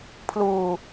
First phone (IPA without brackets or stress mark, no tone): pʰ